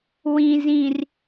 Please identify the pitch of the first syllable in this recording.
low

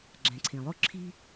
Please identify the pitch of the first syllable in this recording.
low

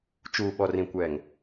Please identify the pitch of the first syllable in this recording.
low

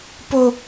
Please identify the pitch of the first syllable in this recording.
high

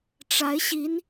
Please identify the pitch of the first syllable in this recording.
rising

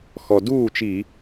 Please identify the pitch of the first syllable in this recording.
low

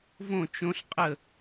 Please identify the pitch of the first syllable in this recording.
falling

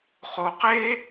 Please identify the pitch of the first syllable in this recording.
low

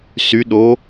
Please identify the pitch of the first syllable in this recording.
rising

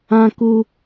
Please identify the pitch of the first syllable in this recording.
high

